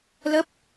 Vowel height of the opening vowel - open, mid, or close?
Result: mid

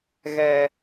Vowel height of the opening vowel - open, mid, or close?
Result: mid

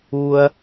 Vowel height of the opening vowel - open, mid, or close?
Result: close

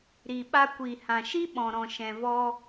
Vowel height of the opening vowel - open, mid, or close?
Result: close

